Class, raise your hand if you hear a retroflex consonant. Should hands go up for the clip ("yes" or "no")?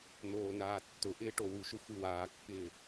yes